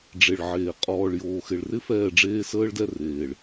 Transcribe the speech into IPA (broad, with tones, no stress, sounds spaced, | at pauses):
ɖ͡ʐ e˨ ɭ ʕ eː˨ qʼ ɔː˨ ɭ j oː˨ x ɪ˨ ɭ r ɪ˦ f ɛː˦˨ ɖ͡ʐ eː˦ s əː˦ ɭ d ɛ˦ r eː˨ ɭ